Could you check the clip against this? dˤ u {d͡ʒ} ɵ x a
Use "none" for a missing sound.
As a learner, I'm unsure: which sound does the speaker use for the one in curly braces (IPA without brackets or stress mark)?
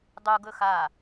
ɡ